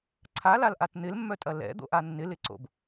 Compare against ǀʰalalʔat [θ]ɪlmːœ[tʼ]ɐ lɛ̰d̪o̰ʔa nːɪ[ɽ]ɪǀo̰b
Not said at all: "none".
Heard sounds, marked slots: n̪, tʼ, l

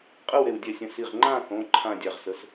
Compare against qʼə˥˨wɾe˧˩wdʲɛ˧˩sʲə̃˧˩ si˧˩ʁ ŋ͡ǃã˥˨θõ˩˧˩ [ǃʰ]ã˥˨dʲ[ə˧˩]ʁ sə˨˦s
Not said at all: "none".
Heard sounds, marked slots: ǃʰ, a˧˩

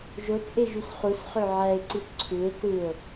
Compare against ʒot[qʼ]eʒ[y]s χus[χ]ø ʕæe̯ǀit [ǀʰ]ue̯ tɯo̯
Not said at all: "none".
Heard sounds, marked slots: ʔ, y, χ, ǀʰ

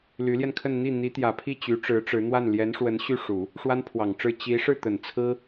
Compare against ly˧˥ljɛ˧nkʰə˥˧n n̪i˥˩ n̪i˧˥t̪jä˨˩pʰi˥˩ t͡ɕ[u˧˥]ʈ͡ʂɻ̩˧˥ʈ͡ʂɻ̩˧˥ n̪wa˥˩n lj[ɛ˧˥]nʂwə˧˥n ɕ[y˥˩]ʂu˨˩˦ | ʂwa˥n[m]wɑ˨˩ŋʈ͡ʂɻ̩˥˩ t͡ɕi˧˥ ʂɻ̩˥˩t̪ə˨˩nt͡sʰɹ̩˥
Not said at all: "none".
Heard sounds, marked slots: y˧˥, ɛ˧˥, y˥˩, pʰ

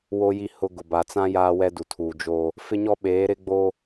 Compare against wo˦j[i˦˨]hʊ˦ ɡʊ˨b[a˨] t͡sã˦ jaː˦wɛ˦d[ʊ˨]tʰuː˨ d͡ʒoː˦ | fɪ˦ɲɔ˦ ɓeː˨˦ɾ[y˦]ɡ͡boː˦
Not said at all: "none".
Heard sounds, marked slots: i˦˨, a˨, u˨, ɪ˦

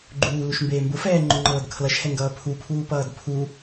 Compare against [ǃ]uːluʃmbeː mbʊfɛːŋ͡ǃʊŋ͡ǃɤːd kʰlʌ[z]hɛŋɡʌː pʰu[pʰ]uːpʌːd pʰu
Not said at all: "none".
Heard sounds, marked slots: ɡ͡ǃ, ʃ, pʰ

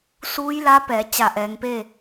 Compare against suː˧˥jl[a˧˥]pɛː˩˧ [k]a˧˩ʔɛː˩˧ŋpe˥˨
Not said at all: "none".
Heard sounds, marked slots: a˧˥, t͡ɕ

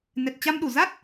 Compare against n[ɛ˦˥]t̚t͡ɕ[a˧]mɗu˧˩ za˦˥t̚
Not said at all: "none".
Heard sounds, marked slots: ɛ˨˩, a˧

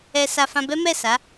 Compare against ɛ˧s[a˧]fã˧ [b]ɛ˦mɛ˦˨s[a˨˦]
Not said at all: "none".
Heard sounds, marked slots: a˧, b, a˨˦

